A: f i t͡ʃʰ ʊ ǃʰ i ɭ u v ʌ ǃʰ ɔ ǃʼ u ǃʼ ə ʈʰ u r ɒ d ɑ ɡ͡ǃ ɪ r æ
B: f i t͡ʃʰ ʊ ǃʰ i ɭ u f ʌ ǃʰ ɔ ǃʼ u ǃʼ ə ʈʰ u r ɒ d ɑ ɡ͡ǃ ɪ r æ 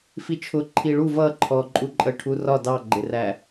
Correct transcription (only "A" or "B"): A